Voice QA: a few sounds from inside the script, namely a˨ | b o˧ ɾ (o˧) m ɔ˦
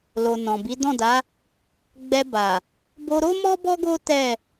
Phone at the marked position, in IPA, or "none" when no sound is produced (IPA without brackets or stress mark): o˦